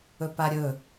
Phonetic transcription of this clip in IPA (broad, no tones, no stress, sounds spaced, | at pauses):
ɵ p a ɾʲ ɵ